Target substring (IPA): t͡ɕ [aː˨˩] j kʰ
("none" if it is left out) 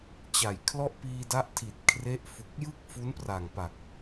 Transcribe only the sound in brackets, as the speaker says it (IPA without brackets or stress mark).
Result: a˨˩